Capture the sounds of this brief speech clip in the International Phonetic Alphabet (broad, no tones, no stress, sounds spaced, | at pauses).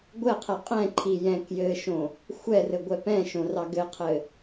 ɡʷ ɛ qʰ ɛ qʼ ɛ̃ ǃʰ i j ɛ̃ k j ɘ ʃ õ | xʷ ɛ r ɘ ɡʷ ɛ p ɛ̃ ʃ õ r ɑ ɡ ɘ qʰ ɘ